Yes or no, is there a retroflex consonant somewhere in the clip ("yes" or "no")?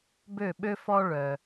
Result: yes